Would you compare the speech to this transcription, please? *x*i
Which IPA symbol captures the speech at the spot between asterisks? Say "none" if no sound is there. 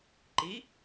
ǃ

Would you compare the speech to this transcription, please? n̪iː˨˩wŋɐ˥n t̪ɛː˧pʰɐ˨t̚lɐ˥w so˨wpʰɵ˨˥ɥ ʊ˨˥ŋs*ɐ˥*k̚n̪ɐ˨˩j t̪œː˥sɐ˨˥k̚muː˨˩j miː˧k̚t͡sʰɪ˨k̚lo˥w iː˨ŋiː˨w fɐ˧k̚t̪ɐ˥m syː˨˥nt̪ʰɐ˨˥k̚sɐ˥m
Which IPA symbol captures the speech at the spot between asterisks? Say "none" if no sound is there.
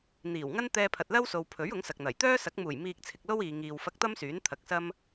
ɐ˨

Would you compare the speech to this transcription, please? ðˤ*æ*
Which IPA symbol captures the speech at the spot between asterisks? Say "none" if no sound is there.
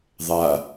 a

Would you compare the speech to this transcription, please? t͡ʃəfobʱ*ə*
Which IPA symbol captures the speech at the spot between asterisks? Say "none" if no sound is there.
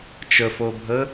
ə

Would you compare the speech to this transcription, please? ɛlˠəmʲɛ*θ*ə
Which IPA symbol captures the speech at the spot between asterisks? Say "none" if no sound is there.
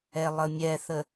θ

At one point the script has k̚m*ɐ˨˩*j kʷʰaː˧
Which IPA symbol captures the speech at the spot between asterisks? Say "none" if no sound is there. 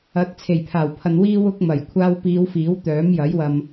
ɐ˨˩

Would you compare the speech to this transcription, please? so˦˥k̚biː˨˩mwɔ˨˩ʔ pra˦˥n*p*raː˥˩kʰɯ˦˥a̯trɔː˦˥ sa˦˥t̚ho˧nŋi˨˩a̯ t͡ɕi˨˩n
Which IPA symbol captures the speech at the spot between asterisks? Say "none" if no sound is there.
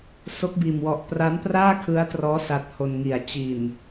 p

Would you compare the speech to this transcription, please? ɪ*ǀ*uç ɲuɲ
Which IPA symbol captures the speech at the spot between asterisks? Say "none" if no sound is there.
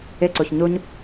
ǀ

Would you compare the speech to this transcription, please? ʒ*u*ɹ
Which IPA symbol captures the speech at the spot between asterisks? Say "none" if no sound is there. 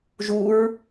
u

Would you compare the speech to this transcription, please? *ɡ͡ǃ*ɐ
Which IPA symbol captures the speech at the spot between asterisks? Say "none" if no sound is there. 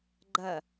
ɡ͡ǃ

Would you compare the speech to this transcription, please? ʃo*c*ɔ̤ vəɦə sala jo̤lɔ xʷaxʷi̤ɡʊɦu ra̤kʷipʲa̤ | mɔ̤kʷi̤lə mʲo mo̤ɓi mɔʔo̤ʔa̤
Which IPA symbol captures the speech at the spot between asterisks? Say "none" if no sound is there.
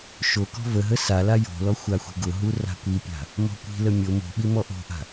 k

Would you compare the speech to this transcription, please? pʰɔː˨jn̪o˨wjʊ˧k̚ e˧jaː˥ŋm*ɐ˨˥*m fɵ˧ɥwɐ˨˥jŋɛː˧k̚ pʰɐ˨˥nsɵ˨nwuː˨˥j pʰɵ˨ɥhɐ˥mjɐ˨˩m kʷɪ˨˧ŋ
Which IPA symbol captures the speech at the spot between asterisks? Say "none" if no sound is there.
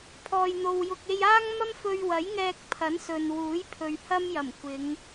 ɐ˥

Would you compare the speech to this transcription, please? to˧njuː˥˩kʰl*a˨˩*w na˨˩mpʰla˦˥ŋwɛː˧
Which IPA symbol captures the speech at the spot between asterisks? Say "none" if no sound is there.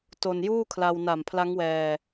a˧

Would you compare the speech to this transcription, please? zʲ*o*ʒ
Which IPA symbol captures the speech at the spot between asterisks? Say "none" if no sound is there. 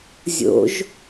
o̰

